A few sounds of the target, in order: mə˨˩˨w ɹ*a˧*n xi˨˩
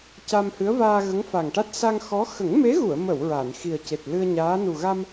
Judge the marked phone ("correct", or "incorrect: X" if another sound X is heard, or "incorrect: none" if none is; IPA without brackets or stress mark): incorrect: a˨˩˨